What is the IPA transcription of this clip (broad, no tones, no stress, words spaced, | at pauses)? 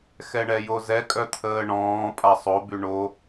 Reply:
xɛɳɛjozɛ kʼœt̪ʰəːɳɔ̃ː pʼasˤo byɳo